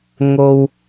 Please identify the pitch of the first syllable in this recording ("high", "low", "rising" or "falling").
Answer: low